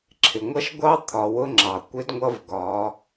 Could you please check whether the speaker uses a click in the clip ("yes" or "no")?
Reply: yes